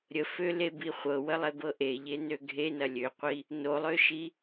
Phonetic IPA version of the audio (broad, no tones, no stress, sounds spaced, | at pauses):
ɾʲ ə f ø l e b i χʷ ɤ w ə lˠ e b ɤ ʔ e ʎ e n ø ɡʱ e n ɐ lʲ ø qʷ i | n o lˠ ø ʃ i